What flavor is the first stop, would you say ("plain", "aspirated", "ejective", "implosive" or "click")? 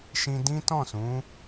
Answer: plain